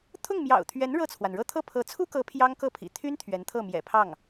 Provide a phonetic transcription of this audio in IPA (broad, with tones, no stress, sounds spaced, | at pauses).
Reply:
t̪ʰ ʊ˥˩ ŋ m j ɑ̰˨˩ ʊ̯ t̪ʰ ɥ ɛ˧˥ n ɻ ɤ˥˩ t͡sʰ w a˩ n ɻ ɤ˥˧ t̪ʰ ɤ˥˩ pʰ ɤ˧˥ t͡sʰ u˥ k ɤ˧˥ pʰ j ɑ˥ ŋ k ɤ˥˩ pʰ ḭ˨˩ t̪ʰ y˥ n t̪ʰ ɥ ɛ˧˥ n t̪ʰ ɤ˥˩ m j ɛ̰˨˩ pʰ ɑ˥˩ ŋ